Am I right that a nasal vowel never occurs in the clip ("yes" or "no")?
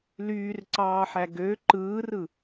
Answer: yes